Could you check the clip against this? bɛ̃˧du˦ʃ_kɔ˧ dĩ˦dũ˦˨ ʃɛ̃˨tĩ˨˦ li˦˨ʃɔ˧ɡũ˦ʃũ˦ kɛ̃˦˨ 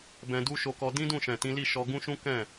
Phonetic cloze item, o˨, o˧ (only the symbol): o˧